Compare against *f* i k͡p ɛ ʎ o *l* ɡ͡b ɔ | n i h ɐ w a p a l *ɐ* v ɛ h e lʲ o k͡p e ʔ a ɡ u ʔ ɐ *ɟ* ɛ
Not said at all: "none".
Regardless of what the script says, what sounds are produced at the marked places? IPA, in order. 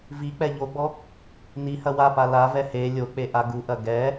v, none, a, ɡ

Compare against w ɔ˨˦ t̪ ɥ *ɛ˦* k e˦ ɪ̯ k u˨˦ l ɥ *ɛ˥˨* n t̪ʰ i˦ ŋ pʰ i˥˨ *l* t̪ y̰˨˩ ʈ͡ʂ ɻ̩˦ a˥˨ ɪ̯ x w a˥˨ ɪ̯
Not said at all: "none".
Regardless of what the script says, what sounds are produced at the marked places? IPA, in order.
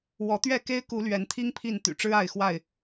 ɛ˥˨, ɛ˨˦, n

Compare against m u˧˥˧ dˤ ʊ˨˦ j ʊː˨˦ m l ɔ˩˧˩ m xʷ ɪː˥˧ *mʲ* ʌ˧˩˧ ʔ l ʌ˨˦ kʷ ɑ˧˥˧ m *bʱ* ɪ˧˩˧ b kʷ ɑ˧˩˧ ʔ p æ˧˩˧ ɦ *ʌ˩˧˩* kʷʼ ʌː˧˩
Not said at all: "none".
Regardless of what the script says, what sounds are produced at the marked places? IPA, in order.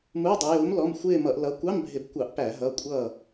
m, bʱ, ʌ˩˧˩

